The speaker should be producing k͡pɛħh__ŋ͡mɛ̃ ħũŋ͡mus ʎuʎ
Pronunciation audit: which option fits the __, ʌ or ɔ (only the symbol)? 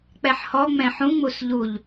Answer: ɔ